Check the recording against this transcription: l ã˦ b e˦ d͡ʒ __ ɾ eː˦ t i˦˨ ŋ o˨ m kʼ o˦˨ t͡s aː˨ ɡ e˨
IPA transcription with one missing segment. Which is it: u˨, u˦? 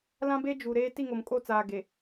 u˨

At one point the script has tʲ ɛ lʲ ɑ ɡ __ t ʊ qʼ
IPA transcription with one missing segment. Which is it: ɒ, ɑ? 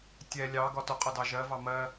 ɒ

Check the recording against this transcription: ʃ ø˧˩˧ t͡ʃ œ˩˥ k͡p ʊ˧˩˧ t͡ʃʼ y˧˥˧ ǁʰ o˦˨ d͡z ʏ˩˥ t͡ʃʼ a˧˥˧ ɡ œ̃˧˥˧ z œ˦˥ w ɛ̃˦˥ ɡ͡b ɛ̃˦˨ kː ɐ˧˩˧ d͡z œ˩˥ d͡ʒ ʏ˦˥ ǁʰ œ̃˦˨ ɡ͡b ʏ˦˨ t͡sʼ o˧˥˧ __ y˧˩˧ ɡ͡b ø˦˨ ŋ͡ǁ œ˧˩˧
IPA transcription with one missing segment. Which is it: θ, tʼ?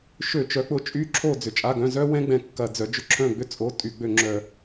tʼ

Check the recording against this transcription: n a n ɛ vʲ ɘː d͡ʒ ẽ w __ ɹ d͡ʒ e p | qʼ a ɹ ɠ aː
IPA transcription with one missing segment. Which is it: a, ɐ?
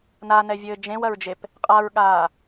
ɐ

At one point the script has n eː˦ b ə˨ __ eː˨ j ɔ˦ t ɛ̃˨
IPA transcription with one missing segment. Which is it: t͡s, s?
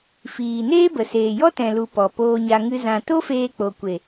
s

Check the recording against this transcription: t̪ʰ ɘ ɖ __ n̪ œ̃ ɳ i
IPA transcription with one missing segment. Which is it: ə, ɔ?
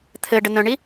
ə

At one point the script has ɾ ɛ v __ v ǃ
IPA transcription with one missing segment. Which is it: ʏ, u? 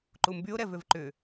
ʏ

